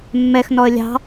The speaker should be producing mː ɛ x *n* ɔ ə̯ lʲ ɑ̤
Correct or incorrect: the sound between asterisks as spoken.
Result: correct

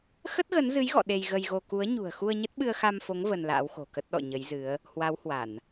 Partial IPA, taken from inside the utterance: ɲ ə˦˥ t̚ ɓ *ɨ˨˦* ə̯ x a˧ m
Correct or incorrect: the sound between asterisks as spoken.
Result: incorrect: ɨ˧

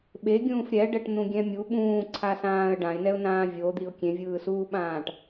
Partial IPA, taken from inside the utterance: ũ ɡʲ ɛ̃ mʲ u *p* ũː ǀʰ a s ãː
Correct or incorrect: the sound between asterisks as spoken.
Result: incorrect: ɓ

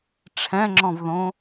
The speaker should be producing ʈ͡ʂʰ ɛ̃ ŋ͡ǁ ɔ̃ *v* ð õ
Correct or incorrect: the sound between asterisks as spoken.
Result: correct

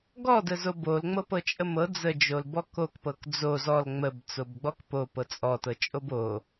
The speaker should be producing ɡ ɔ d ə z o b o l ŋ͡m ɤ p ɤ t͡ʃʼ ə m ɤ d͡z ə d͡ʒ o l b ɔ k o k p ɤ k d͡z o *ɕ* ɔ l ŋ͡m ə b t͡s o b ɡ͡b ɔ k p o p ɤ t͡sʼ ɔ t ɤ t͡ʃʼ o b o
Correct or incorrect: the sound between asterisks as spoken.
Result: incorrect: z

